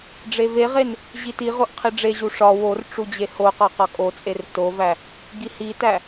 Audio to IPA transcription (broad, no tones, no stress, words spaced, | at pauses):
ɖ͡ʐeveʁen | ʑitiʁoʔ qʰiɖ͡ʐeʑu ʂɒ wor ʈ͡ʂud͡ʑehoqɒ qɒkʼot͡sʼer tovæ | ɡihitæ